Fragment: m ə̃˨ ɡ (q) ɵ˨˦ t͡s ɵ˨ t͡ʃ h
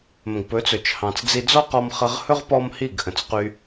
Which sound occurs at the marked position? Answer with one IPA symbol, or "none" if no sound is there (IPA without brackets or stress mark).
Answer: p